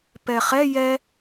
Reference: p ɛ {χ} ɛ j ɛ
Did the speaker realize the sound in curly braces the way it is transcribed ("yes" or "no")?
yes